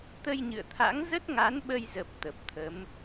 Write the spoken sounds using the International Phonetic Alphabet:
t̪ ə˧ j ɲ ɨ̰˧˨ ə̯ t̪ʰ a̰˧˥ ŋ z ə˦˥ t̚ ŋ a˨˦ n ɓ ə˧ j z ə˨˩ p̚ t̪ ə˨˩ p̚ t̪ʰ ə˨˦ m

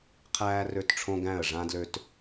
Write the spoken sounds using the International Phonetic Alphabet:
qʰ æː˧ r ø˧˩ t ʈ͡ʂʰ õ˧ ɡ æ̃˧˩ ə̯ ʐ ã˧ d l ø˧ t

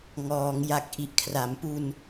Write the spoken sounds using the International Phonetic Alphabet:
ŋ ɔː˩˦ ŋ j a˨˩ k̚ ʔ i˨˩ ʔ kʰ r a˩˦ m p u˧ n

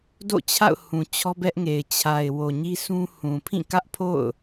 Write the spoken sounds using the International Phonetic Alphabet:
d o̰˦˨ t͡ɕʰ a̰˦˨ ʊ̯ h ũ˨ t͡ɕʰ ɔ˦ b ɛ˦ ʔ ŋ e˨ ɪ̯ t͡ɕʰ a˨ ɪ̯ w o˨ ɲ i˦ sʰ ũ˦ h ũ˨ pʰ ĩ˦˨ k ä˦ ʔ pʰ o̰˦˨ ʊ̯

